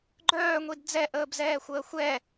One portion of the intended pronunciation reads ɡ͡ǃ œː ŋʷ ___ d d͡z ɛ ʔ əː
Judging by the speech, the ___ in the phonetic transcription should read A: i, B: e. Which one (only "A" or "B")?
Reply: A